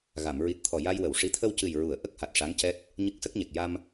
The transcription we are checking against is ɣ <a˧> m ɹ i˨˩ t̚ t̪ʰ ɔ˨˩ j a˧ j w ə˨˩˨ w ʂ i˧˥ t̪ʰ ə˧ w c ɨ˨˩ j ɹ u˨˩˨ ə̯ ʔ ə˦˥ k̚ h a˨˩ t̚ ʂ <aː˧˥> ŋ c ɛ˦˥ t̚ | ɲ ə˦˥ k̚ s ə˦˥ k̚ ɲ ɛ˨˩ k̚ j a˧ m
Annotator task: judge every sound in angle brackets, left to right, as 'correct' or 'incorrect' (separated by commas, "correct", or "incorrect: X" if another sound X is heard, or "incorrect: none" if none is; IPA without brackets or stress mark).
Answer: incorrect: a˨˩˨, incorrect: a˧˥